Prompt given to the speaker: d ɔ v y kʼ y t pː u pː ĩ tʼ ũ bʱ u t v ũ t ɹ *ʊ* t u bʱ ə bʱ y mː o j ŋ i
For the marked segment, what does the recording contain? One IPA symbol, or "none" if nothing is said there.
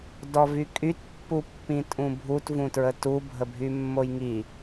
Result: ə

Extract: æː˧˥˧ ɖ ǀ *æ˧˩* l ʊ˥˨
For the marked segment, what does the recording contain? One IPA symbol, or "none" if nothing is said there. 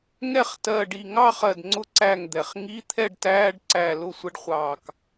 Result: æ˧˩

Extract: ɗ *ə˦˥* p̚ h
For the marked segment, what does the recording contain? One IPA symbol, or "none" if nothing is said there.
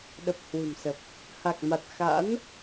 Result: ə˨˩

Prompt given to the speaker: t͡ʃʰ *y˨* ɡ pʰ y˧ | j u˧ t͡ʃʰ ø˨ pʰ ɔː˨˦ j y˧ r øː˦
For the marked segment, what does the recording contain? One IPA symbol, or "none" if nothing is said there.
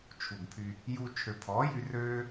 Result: u˨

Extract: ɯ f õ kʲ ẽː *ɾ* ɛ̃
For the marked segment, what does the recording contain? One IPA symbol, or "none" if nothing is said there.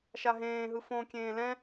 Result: l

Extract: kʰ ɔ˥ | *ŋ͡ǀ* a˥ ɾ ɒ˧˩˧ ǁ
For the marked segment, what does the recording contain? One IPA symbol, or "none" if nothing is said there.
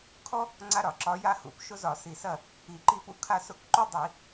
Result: ŋ͡ǀ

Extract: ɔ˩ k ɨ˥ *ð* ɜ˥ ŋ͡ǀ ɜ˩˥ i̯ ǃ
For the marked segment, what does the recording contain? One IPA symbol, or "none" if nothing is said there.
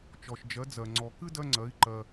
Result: d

